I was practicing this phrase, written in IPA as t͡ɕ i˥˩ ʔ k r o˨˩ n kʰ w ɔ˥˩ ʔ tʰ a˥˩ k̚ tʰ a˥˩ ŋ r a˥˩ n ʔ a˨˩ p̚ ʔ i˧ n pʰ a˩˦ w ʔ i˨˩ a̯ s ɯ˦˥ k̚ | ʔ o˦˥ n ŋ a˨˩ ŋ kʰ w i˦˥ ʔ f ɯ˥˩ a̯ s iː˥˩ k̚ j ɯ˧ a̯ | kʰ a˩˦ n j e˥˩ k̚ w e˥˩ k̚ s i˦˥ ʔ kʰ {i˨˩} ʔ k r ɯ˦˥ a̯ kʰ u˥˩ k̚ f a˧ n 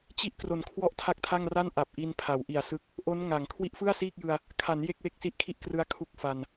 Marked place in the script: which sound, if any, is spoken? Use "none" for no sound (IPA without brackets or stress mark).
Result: i˥˩